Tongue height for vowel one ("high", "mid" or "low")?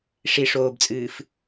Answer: high